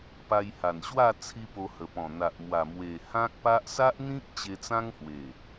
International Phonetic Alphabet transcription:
p a˧ j h a˨˩ n ɕ w a˥˧ t͡sʰ i˧ p o˧ h ə˨˩ p ɔ̃˨˩ n̪ a˨ ʔ m w a˨˩ m w e˨˩ h ã˦ k̚ p a˦ ʔ s a˦ ʔ n̪ ĩ˦ k̚ t͡ɕ e˧ t͡s ã˦ ŋ h w e˨˩

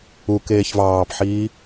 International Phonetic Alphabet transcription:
u k eː ç v ɑː p ħ iː

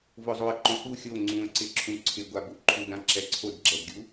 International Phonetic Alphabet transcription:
v ʊ zˤ o ə̯ ǃ õ k u xʲ o ŋ͡ǀ ũ ə̯ ǀ ɪ ǁʰ ũ ǀʰ ɪ ɡʷ a b u ǃʰ u d ã ǁ ɛ ǀʰ o d ɡ͡ǁ ɛ d ɡʲ u

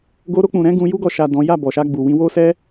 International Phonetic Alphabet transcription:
ɡ o˧ ɾ o˧ k͡p ũ˨ ɾ ɛ̃˨˦ ɡ ũ˧ j u˦ ɡ ɔ˧ ʃ a˨ d ɔ̃˨˦ j a˦˨ b ɔ˨ ʃ a˧ ɡ͡b u˨ w ĩ˧ w o˦ s ɛ˦

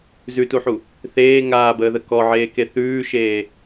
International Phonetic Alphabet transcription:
z ʉ t u ħ u | θ eː ŋ aː b əː ð ə k ɔ ʕ eː k e θ ʉː ʃ eː

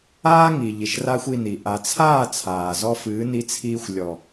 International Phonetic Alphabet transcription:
aː˦ ŋ i˨ ʎ i˨ ʃ r aː˦ xʷ i˧ n i˨ ʔ a˨ t͡sʰ aː˦˨ t͡sʰ aː˨ z ɔ˦ f ɨː˨˦ n i˧ t͡sʰ iː˧ xʷ lʲ ɔ˨

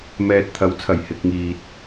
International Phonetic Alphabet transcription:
m ɛː˨ t̚ t̪ʰ ɐ˨˥ w t͡sʰ ɐ˨˩ j h ɪ˨ k̚ ŋ iː˨ t̚

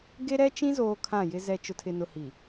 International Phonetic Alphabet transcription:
ɡ e˦ ɾ ɛ˦ t͡ʃ ĩ˦ z oː˦ kʰ ã˦˨ j ɪ˦ z ɛ˦ t͡ʃ ʊ˨ tʰ ɪ˨ n ʊ˨ h i˨

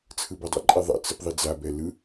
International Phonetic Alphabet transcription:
t͡sʰ ɯ b o dˤ ɛ̰ ǃʼ ɛ ðˤ ɛ̰ t͡s ɯ p ðˤ i d͡z a b ɛ l ɯ

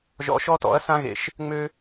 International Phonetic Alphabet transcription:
ʒ ɔ̰˧ ʃ ɔ˥ t ɔ̰˩˥ ɐ̯ s ã˥ ɣ ḛ˧ ʃ | ŋ͡m ø˥

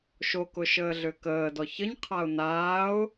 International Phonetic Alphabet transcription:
ʃ o k ʊ ʃ əː ɮ ʏ k əː d ɔ ç ə ɲ qʰ a ʊ̯ n aː ʊ̯

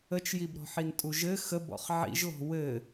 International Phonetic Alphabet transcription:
ə t͡ʃ j i b ɾ ɔ̤ ħ i n tʼ u ʒ ɘ x ə b ɔ̰ χ ʕ ḭ ʒ l ɔ̤ w ɘ

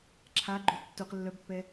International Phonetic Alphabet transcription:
ǁʰ a ɡ͡ǃ ø tː u q lː œ b pː ɛ

